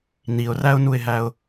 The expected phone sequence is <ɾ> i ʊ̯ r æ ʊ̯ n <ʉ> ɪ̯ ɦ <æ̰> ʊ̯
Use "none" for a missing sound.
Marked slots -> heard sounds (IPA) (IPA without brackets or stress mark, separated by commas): n, u, æ